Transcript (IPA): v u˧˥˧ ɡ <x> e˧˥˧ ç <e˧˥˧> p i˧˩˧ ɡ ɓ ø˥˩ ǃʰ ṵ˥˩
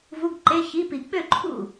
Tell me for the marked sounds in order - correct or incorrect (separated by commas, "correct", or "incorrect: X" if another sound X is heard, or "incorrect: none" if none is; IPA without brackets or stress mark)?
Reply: incorrect: ǃ, incorrect: i˧˥˧